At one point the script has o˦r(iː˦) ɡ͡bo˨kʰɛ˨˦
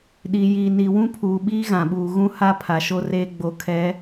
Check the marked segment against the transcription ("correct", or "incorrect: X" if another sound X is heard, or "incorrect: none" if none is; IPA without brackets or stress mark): incorrect: eː˦